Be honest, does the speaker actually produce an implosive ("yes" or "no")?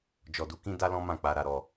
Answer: no